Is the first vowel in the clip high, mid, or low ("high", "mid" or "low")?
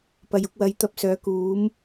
low